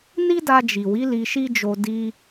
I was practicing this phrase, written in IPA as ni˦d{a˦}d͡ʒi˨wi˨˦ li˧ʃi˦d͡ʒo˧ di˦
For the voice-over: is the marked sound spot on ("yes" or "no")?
no